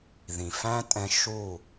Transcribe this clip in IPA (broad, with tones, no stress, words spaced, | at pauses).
ðĩ˨ fæ̃˦ tʼɛ̃˦ ʃu˦˨